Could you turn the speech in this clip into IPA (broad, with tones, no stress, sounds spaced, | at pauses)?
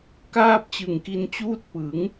k aː˥˩ p̚ t͡ɕ ɯ˨˩ ŋ k i˧ n t͡ɕ uː˦˥ t̚ p ɯ˩˦ ŋ